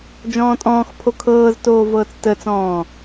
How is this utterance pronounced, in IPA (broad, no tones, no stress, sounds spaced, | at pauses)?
d͡ʒ ɔ̃ː tʼ ɔ̃ː x pʰ o kʰ ɤː z t oː v ɤː t͡s t ə t͡s ɔ̃ː